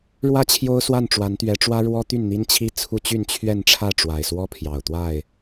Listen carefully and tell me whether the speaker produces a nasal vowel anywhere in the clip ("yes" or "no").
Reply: no